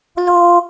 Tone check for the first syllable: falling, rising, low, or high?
high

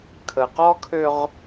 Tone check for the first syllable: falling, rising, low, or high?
low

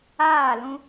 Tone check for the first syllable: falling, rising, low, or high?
falling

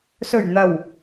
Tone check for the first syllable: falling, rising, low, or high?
low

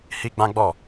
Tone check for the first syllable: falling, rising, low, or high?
high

